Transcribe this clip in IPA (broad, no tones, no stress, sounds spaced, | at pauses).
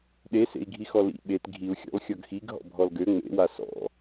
ɗ e s ḛ i̯ ɡʱ i x ɔ l ḭ ɓ e t ɡʱ i u̯ xʲ ɔ̰ l xʲ ɔ ɡ x i ɡ ɦ ɔ̰ bʱ ɔ l ɡ ø ŋ͡m ḛ w a s ɔ̰